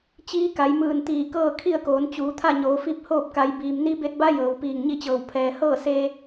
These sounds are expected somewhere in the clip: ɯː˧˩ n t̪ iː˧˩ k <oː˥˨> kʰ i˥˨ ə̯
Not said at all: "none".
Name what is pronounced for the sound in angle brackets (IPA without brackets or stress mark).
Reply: ɤː˥˨